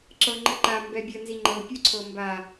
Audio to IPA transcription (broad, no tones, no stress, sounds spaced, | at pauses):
ǁ ɤ ŋ͡ǃ ə ǃ a m b ɛ bʲ ə n z i ŋ͡ǃ ɤ pʲ u ǀʰ ɤ m b a